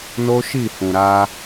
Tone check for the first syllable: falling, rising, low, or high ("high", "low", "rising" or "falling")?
high